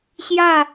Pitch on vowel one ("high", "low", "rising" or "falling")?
falling